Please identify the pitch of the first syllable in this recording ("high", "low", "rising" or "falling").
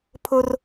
high